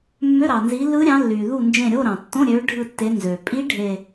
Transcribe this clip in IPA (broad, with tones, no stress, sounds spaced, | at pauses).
mː ø˧˥˧ ɾ ɑ˩ n z i˨˦ lː ɯ˦˥ ɾʲ ɑ̃˨˦ lː yː˩ ð u˦˨ n d͡ʒ ẽ˦˨ ɾʲ o˧˥˧ ɾ ɑ̃˩ tː õ˧˥˧ ɾʲ øː˨˦ ɖʱ ɯ˦˨ tː e˨˦ n z øː˩ pʼ i˦˥ ɖʱ e˦˨